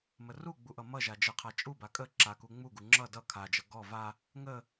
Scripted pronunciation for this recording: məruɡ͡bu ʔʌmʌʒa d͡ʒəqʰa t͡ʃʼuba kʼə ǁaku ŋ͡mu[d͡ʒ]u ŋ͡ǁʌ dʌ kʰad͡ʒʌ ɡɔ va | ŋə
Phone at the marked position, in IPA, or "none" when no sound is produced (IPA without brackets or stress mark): ɡ